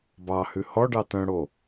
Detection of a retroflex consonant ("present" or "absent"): present